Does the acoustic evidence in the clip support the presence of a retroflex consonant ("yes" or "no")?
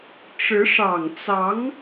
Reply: yes